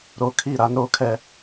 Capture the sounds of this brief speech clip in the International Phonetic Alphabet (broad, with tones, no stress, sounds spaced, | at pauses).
ɾ o˨ kʰ i˦˨ ɾ a˦ n ɾ o˦ kʰ ɛ˦